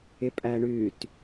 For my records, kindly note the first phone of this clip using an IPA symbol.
ɪ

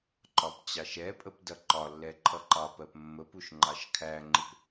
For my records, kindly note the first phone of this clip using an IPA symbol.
ǃ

